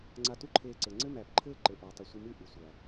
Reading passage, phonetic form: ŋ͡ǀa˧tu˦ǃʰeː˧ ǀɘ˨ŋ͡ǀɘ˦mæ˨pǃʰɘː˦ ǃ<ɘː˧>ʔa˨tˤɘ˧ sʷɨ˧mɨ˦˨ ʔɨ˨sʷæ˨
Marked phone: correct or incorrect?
incorrect